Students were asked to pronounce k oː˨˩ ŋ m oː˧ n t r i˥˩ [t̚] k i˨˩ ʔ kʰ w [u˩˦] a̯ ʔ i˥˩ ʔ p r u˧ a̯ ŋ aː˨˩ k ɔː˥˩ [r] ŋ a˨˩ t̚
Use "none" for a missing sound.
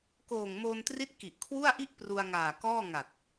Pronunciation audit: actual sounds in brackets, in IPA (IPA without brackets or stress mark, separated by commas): t̚, u˥˩, none